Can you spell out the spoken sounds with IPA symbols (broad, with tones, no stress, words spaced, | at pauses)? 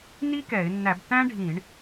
ni˥kɛ˧˩˧ɪ̯ nːæ˧˩˧btæ̃˥ɖʱĩː˧˩˧ɳ